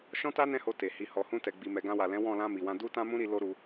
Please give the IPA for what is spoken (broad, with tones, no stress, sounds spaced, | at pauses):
ʃ ɔ̃˦ t a˦ n ɛ̃˦ h o˧ t e˨ h i˨ h ɔ˨ h ũ˧ t ɛ˨ ɡ͡b i˨ m ɛ˨ ɡ ã˧ w a˨ l ɛ̃˨˦ w ɔ̃˦˨ l ã˧ m i˨ w ã˧ d u˦ t ã˦ m ũ˦ ɾ i˧ l o˦ ɾ u˧